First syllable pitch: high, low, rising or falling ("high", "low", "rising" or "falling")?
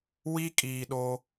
high